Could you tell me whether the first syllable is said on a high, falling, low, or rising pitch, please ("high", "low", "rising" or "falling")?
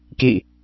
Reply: falling